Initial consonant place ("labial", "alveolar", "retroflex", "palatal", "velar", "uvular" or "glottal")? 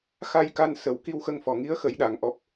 velar